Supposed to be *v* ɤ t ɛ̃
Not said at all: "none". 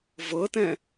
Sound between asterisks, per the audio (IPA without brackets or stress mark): v